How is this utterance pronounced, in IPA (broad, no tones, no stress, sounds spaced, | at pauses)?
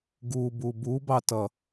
ɡ u b u b u b ɑ t ʌ